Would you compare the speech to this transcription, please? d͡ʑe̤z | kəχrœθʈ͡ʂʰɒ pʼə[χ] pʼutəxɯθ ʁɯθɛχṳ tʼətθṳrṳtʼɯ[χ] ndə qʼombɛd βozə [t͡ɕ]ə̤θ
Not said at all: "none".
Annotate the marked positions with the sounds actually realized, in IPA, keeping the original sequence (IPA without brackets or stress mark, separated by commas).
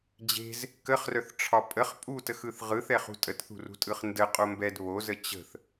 χ, χ, t͡ɕ